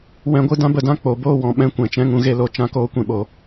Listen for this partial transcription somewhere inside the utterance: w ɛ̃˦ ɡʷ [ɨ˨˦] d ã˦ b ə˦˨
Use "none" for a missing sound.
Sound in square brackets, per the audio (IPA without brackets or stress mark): ɨ˦